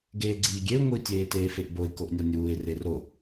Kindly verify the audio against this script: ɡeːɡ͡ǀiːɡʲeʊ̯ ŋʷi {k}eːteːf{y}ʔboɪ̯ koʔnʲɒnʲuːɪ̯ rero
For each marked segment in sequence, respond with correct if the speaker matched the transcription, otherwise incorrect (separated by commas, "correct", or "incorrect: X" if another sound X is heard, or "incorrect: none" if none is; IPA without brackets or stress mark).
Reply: incorrect: tʲ, incorrect: e